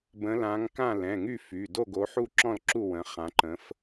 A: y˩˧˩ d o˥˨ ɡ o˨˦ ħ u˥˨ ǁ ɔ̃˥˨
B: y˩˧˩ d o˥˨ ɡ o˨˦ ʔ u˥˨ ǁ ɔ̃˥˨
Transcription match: A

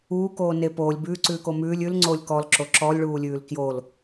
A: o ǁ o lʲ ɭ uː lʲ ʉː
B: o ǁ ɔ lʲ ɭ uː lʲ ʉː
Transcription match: B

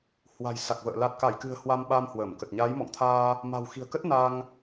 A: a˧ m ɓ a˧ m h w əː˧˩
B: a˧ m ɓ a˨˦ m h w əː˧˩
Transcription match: A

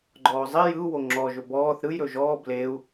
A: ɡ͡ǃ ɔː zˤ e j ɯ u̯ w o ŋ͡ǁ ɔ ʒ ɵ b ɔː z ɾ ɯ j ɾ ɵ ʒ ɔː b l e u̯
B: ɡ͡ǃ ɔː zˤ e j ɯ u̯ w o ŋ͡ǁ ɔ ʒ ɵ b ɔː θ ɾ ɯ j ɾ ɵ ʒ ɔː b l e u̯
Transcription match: B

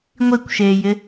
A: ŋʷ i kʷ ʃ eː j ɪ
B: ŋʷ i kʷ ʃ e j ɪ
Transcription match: A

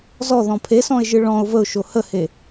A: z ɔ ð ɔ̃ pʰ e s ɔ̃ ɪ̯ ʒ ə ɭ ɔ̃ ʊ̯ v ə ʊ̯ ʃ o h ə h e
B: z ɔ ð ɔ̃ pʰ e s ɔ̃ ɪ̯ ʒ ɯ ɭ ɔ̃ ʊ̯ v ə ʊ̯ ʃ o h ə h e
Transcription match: B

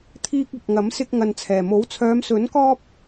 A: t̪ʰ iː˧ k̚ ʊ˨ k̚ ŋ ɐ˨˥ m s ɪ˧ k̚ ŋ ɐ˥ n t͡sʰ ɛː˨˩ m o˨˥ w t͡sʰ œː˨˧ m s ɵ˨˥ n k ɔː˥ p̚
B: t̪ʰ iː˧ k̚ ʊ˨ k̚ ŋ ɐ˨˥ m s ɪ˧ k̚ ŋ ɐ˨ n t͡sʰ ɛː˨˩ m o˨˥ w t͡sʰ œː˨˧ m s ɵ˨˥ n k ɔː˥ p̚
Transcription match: B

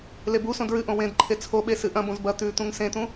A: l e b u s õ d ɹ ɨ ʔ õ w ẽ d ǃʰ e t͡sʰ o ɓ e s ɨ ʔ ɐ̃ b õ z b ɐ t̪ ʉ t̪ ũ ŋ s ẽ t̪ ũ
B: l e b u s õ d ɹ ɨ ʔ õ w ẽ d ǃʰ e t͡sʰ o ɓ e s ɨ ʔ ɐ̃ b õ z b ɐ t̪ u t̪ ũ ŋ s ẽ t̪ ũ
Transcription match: A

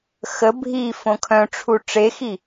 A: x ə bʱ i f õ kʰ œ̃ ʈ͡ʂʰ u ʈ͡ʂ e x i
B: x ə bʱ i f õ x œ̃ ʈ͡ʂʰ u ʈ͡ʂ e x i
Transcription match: A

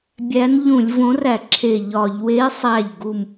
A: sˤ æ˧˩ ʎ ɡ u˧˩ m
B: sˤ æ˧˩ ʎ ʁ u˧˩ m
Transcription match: A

